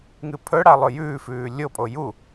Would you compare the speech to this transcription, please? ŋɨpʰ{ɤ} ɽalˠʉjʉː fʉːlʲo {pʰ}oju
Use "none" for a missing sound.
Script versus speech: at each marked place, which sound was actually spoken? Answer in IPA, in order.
ɵ, pʼ

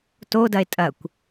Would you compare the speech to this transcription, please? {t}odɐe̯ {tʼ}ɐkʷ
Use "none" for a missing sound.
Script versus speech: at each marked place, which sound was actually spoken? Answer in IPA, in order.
t, tʼ

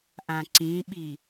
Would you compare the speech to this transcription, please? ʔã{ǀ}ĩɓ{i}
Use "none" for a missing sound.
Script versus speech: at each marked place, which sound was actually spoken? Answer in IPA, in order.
ǀ, i

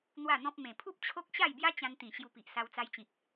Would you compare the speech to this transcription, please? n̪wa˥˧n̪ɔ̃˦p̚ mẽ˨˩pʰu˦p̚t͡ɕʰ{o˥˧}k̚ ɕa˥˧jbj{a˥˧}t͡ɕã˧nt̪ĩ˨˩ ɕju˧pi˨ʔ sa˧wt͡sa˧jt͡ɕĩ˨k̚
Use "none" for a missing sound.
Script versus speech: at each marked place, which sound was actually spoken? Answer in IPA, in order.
o˦, a˦

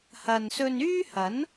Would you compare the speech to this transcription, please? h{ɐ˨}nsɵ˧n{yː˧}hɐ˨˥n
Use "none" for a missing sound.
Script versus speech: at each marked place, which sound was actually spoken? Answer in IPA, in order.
ɐ˨, yː˥

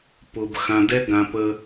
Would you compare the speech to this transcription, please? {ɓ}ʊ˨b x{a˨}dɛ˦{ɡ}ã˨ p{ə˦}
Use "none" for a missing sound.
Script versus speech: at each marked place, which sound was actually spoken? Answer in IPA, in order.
p, ã˨, ɡ, ə˦

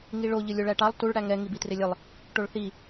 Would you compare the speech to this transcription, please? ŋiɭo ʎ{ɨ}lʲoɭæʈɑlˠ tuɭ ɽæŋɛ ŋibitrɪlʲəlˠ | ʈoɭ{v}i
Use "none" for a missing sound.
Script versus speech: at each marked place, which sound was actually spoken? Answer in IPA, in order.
ɨ, θ

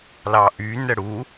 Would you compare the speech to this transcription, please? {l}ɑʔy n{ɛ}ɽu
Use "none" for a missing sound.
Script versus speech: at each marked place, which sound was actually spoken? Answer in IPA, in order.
l, ɛ

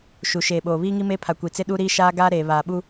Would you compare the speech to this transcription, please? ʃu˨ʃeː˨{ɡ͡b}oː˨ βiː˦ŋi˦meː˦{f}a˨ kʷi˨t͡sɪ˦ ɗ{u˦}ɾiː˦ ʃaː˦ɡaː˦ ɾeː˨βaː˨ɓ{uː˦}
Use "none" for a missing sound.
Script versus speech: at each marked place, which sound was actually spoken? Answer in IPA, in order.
ɓ, pʰ, u˦, u˦

